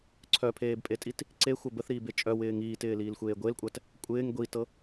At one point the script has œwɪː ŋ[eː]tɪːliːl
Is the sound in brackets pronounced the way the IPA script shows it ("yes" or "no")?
no